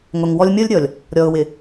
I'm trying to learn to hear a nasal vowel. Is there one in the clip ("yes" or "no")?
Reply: no